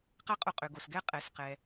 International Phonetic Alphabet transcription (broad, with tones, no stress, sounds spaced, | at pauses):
q a˥ qʼ o˧ qʼ ø˩ ɡ o˩ s ɡ ɛ˥ qʼ ɛ˩ s q ɛ˩